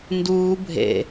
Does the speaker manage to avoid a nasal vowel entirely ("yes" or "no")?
yes